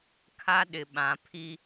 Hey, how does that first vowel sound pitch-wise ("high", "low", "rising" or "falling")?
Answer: high